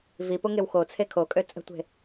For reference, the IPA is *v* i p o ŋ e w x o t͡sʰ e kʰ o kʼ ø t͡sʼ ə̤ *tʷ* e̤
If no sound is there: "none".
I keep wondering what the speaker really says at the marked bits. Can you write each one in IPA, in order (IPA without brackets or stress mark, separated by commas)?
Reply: v, tʷ